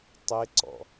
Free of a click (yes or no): no